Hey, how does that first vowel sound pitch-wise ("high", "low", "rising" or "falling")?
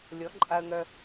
rising